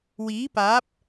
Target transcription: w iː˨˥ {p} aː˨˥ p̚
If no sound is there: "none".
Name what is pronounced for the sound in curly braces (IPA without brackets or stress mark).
p